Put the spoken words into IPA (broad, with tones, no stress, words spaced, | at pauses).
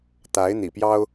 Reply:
t̪a˧˥ɪ̯ n̪ḭ˨˩pjɑ˥ʊ̯